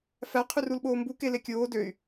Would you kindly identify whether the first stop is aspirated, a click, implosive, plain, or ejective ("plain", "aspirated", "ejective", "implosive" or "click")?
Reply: aspirated